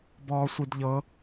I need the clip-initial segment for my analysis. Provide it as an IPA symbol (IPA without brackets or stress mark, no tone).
b